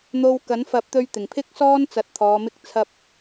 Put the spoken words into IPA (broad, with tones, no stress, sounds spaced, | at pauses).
n̪ o˧ w k ɐ˨˥ n f ɐ˨˥ p̚ t̪ ɵ˧ ɥ t̪ ɪ˨˩ ŋ pʰ ɪ˥ k̚ s ɔː˥ n t͡s ɐ˧ t̚ t̪ʰ ɔː˨˧ m ɪ˥ k̚ t͡sʰ ɐ˥ p̚